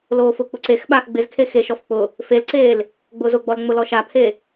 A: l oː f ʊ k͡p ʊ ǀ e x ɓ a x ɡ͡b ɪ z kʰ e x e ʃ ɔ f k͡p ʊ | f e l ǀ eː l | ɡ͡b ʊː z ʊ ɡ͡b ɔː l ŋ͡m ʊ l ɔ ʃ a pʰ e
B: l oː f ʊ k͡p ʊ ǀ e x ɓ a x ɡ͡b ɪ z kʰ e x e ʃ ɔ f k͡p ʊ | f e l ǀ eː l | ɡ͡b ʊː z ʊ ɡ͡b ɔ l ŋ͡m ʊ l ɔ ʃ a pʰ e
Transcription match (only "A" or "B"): B